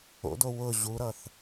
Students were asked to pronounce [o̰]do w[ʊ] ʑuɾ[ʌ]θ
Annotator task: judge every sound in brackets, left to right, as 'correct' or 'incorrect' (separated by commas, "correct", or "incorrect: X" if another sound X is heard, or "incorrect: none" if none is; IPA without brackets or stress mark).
correct, correct, correct